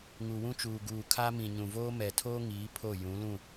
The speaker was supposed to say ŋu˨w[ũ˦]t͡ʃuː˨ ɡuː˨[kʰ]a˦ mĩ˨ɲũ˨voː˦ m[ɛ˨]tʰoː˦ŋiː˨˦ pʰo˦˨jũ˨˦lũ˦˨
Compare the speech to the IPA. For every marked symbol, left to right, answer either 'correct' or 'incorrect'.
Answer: correct, correct, correct

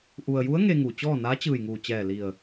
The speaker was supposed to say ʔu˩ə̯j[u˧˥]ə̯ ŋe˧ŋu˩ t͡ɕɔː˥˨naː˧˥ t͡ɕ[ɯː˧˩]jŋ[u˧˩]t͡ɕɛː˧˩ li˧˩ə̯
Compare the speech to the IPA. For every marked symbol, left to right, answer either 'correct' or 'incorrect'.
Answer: correct, correct, incorrect

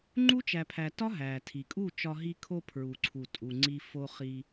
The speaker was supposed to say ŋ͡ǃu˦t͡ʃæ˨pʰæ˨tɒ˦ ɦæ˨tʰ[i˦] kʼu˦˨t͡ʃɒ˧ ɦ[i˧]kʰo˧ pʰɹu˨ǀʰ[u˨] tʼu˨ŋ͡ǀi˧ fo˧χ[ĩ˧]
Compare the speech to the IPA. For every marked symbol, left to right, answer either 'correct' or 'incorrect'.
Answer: incorrect, correct, correct, incorrect

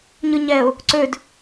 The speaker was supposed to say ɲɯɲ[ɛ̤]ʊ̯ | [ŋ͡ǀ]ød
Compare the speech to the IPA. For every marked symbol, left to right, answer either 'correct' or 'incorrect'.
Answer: incorrect, incorrect

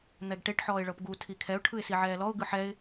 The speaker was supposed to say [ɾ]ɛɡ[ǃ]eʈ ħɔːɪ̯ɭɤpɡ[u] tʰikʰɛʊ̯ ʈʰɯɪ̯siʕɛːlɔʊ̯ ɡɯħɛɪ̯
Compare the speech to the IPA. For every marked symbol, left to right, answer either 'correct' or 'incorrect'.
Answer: incorrect, incorrect, correct

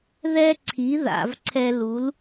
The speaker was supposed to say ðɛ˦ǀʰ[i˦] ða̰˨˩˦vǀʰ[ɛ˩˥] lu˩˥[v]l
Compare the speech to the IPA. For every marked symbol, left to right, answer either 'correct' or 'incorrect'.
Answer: incorrect, incorrect, incorrect

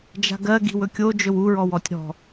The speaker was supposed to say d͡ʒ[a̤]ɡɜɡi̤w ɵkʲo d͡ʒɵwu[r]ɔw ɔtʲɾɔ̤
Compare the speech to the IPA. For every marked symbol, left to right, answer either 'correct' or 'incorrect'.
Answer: correct, incorrect

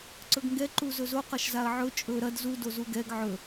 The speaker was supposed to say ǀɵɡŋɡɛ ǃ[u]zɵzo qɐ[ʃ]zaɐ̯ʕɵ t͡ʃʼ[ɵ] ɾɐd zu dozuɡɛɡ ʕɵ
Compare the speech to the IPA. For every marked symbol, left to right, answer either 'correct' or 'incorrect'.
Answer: correct, correct, correct

